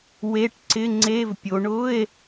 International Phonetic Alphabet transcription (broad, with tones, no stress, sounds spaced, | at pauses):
w e˧˥˧ ʈ ǀ ɪ˧˥˧ ŋ͡ǀ e˧˥˧ v pʲ o˨˦ ɳ ʊ˧˥˧ e̯